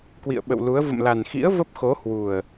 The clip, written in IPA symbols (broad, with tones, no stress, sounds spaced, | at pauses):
k w ḭ˧˨ ə̯ ɓ ə̰˧˨ w l u˨˦ ə̯ v ə̰˧˨ m l a˨˩ n x ḭ˧˥ ə̯ v ə˦˥ p̚ x o˨˦ h w u˨˩ ə̯